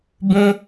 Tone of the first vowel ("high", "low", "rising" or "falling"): high